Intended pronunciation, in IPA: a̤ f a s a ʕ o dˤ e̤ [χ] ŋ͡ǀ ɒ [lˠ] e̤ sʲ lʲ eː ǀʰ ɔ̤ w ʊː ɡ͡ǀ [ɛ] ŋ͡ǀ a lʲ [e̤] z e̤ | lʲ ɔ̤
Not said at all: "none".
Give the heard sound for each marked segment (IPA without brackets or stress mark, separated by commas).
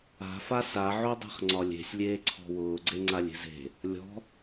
χ, lʲ, e, e̤